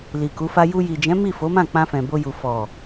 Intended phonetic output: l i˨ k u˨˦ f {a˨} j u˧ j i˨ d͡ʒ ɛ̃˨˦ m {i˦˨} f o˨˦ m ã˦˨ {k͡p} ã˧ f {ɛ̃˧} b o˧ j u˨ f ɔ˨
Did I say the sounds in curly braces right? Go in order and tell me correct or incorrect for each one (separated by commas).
incorrect, correct, correct, incorrect